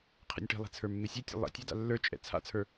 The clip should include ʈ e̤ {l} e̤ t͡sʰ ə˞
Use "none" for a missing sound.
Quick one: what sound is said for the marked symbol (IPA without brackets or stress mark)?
lˠ